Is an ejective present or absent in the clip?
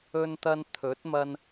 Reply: absent